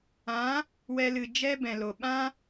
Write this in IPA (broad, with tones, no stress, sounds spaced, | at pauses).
ã˨˦ | w ɛ˧ l ɨ˨ d͡ʒ ɛ˦ b ɛ̃˨ l o˨ ɓ ã˦